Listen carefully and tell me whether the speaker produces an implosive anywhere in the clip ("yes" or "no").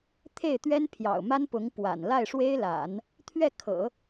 no